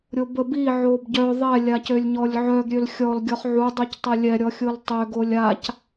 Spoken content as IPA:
ɾʲobə bi ʕobɟœ ðˤɛ lʲacølʲɲɔlʲʕœɡ ɾʲølxʲɔl ɡʲɔχʕu dˤyctˤelʲɛ ɾʲɔxʲoltˤø ɡolʲac

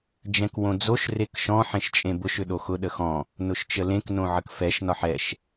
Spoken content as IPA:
d͡ʒɛ̃kwõd͡zoʃ rekʃɔ̃ ħẽʃt͡ʃʼẽbʊʃ ʏɗoxʊ ɗəxɔ̃ | nʊʃt͡ʃəlẽk nõʕəkfɛʃ nɒħɛʃ

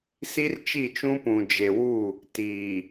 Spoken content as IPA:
si˦rt͡ʃi˦˨t͡ʃũ˦ pũ˨d͡ʒe˨wu˦˨ | tiː˨

